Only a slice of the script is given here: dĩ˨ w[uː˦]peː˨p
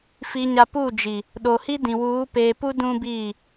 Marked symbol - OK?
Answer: no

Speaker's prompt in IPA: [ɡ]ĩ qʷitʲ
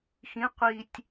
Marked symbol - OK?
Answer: no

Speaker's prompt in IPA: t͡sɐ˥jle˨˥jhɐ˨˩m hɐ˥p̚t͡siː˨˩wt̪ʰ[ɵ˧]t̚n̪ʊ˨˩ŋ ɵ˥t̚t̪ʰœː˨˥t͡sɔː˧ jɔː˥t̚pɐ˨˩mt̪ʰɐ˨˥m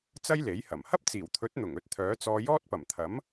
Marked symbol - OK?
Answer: no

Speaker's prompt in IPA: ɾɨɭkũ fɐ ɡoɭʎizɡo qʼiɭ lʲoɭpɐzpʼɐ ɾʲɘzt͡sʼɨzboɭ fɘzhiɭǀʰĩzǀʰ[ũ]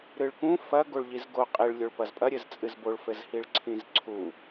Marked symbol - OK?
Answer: no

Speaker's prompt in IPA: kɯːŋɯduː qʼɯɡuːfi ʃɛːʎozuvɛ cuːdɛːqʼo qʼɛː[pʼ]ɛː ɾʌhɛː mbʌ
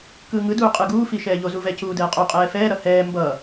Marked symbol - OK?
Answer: no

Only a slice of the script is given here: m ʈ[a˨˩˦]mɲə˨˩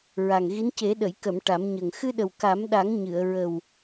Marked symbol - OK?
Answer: yes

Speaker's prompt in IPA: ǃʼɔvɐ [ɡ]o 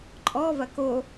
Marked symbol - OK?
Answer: no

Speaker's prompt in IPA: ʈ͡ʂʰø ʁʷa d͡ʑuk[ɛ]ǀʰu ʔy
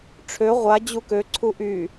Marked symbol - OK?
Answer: no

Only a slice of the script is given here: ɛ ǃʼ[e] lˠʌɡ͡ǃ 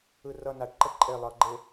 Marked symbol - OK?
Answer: yes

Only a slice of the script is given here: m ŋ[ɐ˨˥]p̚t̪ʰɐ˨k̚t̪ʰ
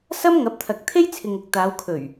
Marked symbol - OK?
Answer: yes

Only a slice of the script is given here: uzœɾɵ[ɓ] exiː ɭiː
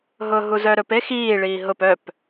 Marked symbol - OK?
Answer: no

